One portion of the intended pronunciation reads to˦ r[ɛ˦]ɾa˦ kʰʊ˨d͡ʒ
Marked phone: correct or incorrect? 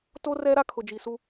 correct